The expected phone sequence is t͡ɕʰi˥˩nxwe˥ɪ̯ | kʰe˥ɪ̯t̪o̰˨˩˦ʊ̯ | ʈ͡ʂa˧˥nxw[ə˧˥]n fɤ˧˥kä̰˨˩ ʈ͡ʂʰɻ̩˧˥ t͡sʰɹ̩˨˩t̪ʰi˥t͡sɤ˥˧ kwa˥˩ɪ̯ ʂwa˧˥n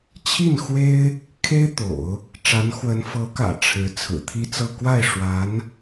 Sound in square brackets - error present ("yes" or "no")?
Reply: no